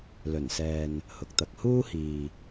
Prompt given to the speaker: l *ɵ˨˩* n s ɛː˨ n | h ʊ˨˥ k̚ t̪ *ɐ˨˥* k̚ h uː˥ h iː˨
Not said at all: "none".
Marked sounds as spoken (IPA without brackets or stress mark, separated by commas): ɵ˨˩, ɐ˨˥